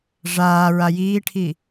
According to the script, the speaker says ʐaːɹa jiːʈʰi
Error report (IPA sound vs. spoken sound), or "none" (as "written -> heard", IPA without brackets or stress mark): none